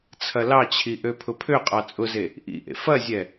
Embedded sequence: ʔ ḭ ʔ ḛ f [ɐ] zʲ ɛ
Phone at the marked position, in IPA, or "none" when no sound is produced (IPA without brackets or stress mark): ɐ